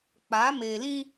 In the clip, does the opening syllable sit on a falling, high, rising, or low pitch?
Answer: rising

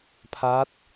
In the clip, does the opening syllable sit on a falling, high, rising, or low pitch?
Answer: rising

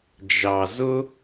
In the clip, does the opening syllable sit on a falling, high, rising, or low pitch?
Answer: low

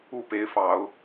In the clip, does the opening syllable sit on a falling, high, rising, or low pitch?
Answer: falling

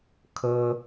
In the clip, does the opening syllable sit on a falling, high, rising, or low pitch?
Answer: high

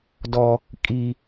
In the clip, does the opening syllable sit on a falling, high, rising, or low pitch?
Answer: high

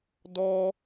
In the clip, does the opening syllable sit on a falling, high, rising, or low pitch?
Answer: high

